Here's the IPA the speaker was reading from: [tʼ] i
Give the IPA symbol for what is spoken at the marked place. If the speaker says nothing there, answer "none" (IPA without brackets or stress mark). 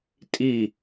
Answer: tʼ